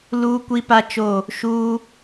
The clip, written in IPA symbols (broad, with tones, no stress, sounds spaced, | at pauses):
l uː˦ kʷ i˦ p a˦ t͡ʃ o˦˨ | ʃ uː˦